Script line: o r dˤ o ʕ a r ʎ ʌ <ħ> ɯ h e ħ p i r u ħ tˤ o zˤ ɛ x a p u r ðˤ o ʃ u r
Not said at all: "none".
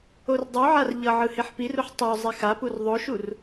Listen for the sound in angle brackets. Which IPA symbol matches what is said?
ʕ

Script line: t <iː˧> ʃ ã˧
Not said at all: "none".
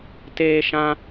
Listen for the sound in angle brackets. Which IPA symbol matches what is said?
eː˧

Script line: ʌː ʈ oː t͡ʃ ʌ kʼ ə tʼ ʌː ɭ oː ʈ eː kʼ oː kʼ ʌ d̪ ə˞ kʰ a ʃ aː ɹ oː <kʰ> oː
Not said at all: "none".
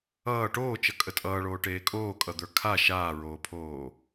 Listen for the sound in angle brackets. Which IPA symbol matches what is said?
pʰ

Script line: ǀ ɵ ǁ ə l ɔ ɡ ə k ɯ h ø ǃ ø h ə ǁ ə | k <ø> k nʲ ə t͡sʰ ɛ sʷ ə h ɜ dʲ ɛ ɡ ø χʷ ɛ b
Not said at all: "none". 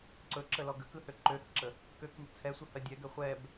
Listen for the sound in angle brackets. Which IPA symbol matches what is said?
ø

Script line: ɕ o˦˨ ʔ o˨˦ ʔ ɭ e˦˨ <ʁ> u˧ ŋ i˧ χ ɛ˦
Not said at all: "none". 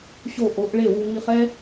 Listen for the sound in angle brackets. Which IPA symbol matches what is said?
w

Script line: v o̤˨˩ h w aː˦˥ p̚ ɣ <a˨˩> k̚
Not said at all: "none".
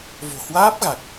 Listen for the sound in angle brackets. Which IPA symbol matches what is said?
a˨˩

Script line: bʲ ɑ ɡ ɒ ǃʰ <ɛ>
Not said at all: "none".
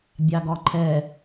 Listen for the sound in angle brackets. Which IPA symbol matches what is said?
ɛ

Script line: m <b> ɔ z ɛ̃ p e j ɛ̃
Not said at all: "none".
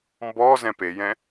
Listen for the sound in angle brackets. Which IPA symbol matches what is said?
b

